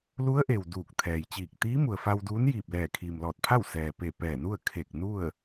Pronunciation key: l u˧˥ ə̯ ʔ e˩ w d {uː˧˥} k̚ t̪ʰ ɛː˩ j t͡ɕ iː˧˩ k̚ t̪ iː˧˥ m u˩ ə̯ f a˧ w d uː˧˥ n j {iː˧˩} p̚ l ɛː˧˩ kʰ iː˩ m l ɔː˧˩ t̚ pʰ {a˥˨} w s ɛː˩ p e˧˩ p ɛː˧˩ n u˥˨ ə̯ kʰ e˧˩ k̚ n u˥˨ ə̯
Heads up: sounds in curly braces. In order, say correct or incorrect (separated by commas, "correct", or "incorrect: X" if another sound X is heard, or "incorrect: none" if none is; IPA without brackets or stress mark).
incorrect: uː˧˩, correct, correct